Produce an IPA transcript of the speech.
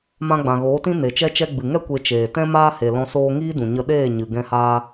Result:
mã˧ɡ͡bã˨ɣoː˨˦tĩ˦ ne˨t͡ʃɛ˧t͡ʃɛ˧ ɡ͡bɨ˨ŋɛ˦ kʷe˧t͡ʃeː˨ tɛ̃˦maː˦ he˨lɔ̃˧ soː˧ŋiː˦dũ˨ɲə˧ ɗeː˦˨ɲɨ˨ ɡɛ̃˦haː˦

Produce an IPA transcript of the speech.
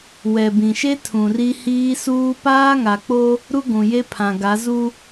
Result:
wɛ˨bĩ˨ʃe˦ tʰũ˨ri˦ hiː˦suː˦ paː˦ŋa˨k͡po˦ | ɾu˦ɡʷũ˨ je˦pʰã˨ɡa˨˦ zu˦

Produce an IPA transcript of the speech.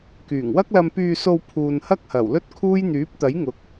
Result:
kyː˨˩ŋwɐ˥k̚ lɐ˧mpyː˧so˧w pʰuː˨nhɐ˥k̚hɐ˨˩w lɵ˥t̚kʰuː˥j n̪yː˨˥p̚t̪ɐ˨˥jŋʊ˨˥k̚

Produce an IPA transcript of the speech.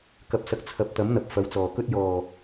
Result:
kɐ˨p̚sɐ˨k̚ t͡sʰɐ˨˥p̚t̪ɐ˨˥mn̪ɐ˨p̚ fɐ˨˥wt͡sɔː˨˩kɵ˥t̚ jɔː˨˩

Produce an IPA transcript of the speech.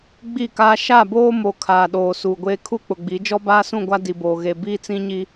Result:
ɡ͡bi˦˨kaː˦ ʃa˦˨boː˦mo˨ kʰaː˨ɗoː˨ suː˨ɡʷeː˦ kʰu˦k͡pʊ˨ɡ͡bi˨˦ d͡ʒɔ˦baː˦sũ˦˨ɡʷa˦ di˨boː˨ɣe˨ biː˦t͡sĩ˦ɲi˦

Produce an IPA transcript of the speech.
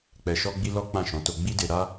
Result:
k͡pɛ˧ʃɔ˦ɡ͡bi˦ lɔ˦ k͡pã˦˨ʃɔ̃˨˦to˧ ɡ͡bi˦de˧ ɾa˦

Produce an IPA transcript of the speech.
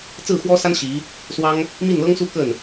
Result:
t͡sɹ̩˥˩xwɔ˥sa˥n ɕi˧˥ | swɑ˥ŋ | mi˥˩nlɤ˥ŋsu˥ kə˥˩n

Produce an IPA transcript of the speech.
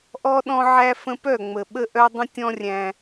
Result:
ʔɔ˦ɗɔ̃˦ ʕæ˦fə̃˦ pœ˦˨ŋ͡mə˨ɓə˦ʔœ˦ dˤə̃˦tʲɔ̃˦ rʲæ̃˦

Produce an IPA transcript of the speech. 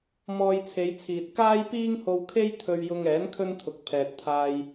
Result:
mɔː˧jt͡sʰe˨˧jt͡sʰiː˨t̚ kaː˥jpiː˥ŋho˧wkʰe˥j t̪ʰɵ˧ɥjʊ˧ŋɛː˨˥n kʰɵ˥nt̪ʰʊ˨k̚ pʰɛː˨t̚t̪ʰaː˧j

